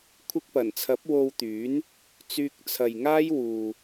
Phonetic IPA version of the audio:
kʷʰ ɪ˧ k̚ p ɐ˨˩ n t͡sʰ ɐ˨˥ p̚ w o˧ w t̪ yː˨˥ n | t͡s yː˧ k̚ t͡sʰ ɐ˨ j ŋ aː˥ j w uː˨

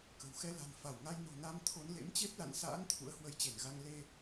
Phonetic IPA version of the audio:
k ə̤˨˩ w x ɛ˧ l a̤˨˩ n f a˧˩ w ŋ a˧ j n o̤˨˩ n a˧ m t̪ʰ o˨˦ n l ḛ˧˥ m t͡ɕ e˦˥ p̚ l a̰˧˨ n s a̰ː˧˥ n t̪ʰ ṵ˧˥ ə̯ h w ə˨˦ j t͡ɕ e˧˩ n ɣ a˧ ŋ l e˧

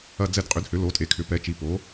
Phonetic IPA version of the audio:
ɐ˦˨ d͡z ɛ˦˨ d qʼ ʏ˨˥ d h ʏ˨˥ l o˨˥ tʼ e˨˥ kʰ ʏ˨˥ p ɛ˨˥ t͡ʃ i˨˥ p o˨˥

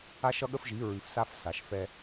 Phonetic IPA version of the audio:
a˦ ʃ ʌ˦ ɠ ə˦ f ʒ i˨˦ ɹ ʉ˨ f s a˦ f s a˨ ʃ f ɛ˦

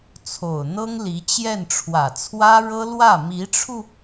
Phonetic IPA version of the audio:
t͡sʰ o˨˩ ʊ̯ n̪ ɤ˥ ŋ l i˧˥ t͡ɕ j ɛ˥˩ n ʈ͡ʂʰ w ä˨˩ t͡sʰ w ä˥ ɻ ɤ˥ l w ä˥˩ m i˧˥ ʈ͡ʂʰ u˧

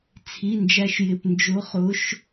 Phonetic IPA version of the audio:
t͡sʰ i˩˧˩ n d͡ʒ æ˨˦ ʃ j ɪ˩˧˩ p n d͡ʒ ʊ˨˦ χ ʊ˨˦ ʃ

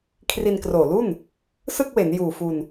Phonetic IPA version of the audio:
kʰ r i˧ n k r oː˨˩ l u˥˩ n | s ɯ˥˩ k̚ w e˩˦ n j uː˨˩ f u˧ n

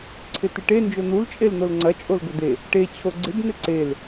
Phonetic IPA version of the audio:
ǀʰ ɪ t ɪ ʈ e n d͡ʒ o n̪ u l t͡ʃʼ e l n̪ o l ŋ͡ǀ ɐ t͡ʃʼ o l ɡ ɵ d̪ e | ʈ e t͡ɕʰ o ɡ͡ǀ ɪ b n̪ ɪ ǀ e l

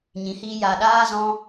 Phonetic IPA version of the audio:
ɲ ĩ˨˦ h iː˧ j a˨ ɗ aː˧ z ɔ̃˧

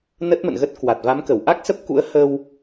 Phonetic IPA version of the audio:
n ə˦˥ t̚ m ə̰˧˨ n ɣ ə˦˥ t̚ k w a˨˩ t̚ v a˨˦ m k ə˧˩ w ʔ a˦˥ k̚ s ə˦˥ p̚ k ṵ˧˥ ə̯ h ə˧ w

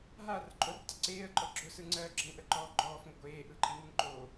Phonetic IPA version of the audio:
ɦ a r ǃʼ o r tˤ ʊ ǀ eː ə̯ ǃʼ ɔ ɡ͡ǁ ʊ s ɯ ŋ͡ǀ ɜː ɡ͡ǁ ə ŋ ʔ ə ǃ ɔː ɡ͡ǃ ɔː f ŋ ə ɡʷ eː ʔ ɯ ǃʼ i ŋ ɯ ŋ ǃ oː

